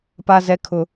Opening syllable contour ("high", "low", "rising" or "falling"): high